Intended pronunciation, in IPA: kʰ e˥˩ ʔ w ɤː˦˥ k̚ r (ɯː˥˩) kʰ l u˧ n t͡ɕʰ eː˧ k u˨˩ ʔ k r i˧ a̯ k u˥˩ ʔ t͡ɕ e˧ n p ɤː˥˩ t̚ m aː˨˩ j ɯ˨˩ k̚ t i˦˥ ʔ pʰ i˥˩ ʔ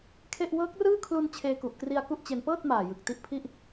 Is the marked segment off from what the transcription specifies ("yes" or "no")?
no